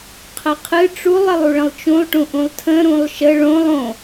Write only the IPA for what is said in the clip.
qʰəqʰɨ ʈ͡ʂulˠ əlˠuɭə̃lˠt͡ʃũlˠ ʈũʔũlˠtʰə̃ ɾũlˠʃə ɭõlˠ õ

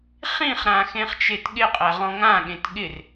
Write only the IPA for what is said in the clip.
χĩχɾã xẽχt͡ʃetɠɪqʼæ ʁɔ̃ŋãɠẽt ɠɪr

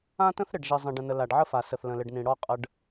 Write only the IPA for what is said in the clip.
ã˦tə̃˦θ ɾɪ˨ɖʒi˨zˤə̃˨ ɖə̃˨nə˨ la˨ɖʕə˦fa˨ sə˨θlə̃˨lɪ˨ɖnĩ˨ ɽɔ˦qʼə˦ɖ

